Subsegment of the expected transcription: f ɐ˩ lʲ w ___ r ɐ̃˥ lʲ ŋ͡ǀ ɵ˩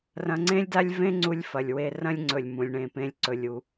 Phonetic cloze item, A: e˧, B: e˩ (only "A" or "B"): A